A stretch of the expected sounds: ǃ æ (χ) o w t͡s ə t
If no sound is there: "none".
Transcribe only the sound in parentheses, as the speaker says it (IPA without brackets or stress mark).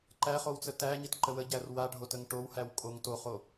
χ